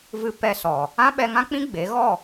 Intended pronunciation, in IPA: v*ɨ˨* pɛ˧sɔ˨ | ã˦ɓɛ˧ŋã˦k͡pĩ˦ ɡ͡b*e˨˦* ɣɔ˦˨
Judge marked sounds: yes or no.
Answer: no, yes

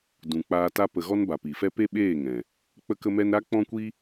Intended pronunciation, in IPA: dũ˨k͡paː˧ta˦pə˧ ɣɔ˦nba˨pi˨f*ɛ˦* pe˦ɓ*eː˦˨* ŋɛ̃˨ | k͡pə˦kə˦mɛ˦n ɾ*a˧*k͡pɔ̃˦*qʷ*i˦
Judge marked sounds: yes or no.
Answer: yes, yes, no, no

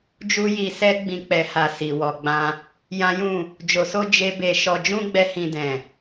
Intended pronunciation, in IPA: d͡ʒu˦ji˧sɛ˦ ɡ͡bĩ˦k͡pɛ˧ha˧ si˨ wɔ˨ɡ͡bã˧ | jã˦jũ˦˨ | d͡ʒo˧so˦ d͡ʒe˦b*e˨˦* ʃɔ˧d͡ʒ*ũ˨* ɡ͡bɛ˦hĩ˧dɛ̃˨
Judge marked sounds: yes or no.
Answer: no, no

